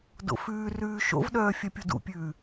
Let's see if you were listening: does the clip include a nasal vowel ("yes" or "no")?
no